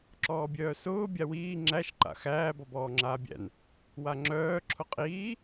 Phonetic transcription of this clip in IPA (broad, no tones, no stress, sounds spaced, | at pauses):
ǁ ɔː bʲ œː s ʊː bʲ a w iː ŋ͡ǁ æ ʃ ǃ a̰ x æː b ɔ b ɔː ŋ͡ǁ aː bʲ æ̰ n | w a ŋ͡ǁ œː ǁʰ ʊ qʼ iː